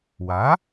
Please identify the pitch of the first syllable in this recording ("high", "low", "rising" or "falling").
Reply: rising